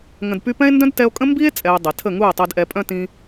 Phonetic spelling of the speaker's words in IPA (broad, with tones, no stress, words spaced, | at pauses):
ŋə̃˨dpy˧pɛ̃˦e̯ ndœ̃˦dtɛ˧o̯kʼə̃˦ mbi˦e̯ t͡sʼɛ˧e̯dˤi˨ tʰə˦˨ŋu˦˨e̯tˤœ˧d ʔɛ˧pʼœ̃˦ tĩ˧